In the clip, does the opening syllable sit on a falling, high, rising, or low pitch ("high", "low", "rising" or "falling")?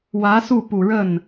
rising